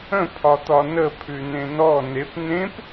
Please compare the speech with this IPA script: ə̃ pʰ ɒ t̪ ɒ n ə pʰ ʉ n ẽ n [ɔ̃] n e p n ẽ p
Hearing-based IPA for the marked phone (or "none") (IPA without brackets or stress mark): ɔ